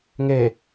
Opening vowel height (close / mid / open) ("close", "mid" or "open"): mid